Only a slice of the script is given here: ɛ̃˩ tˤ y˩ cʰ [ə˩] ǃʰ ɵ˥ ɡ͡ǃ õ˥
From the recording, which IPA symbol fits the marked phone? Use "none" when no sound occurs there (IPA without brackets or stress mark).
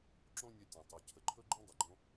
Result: ə˩